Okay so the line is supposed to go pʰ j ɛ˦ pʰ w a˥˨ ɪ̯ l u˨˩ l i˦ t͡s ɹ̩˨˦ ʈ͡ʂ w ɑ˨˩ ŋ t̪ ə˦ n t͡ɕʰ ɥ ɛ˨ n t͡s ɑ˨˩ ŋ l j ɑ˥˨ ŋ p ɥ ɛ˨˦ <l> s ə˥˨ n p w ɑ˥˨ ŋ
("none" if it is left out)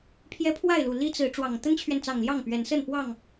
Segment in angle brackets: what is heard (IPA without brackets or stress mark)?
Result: n